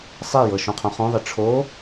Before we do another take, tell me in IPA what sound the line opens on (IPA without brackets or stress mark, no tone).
sˤ